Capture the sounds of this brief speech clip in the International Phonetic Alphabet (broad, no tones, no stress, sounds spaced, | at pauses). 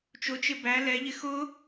t͡ʃ ʊ t͡ʃ ɪ b æ l ɛ ʎ ɪ x ʊ